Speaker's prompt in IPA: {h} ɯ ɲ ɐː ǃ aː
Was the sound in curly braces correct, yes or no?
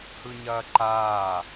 yes